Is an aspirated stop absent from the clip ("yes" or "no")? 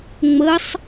yes